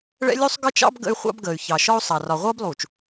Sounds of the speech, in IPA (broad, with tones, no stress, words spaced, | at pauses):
ɭɛ̰˦lʲu˦sˤɡʌ˦t͡ʃɑ̰˦b ɡə̰˦y̯ χʷɑ̰˦bɡəː˨y̯ çɑ˨ʃɒ˦u̯sˤɑ˨ rɒ˨ʁʷʌː˦blˠuː˨t͡ʃ